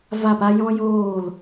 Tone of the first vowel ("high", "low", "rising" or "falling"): falling